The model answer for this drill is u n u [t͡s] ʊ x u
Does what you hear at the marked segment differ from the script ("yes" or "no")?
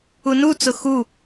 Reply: no